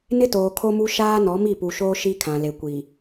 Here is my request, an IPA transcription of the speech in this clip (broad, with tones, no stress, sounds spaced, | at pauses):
n ɪ˦ t oː˨ kʰ o˦ m u˦ ʃ aː˦ n ɔ˨˦ m i˦˨ p u˨ ʃ oː˦ ʃ i˦ kʰ ã˨ l e˨ kʷ i˨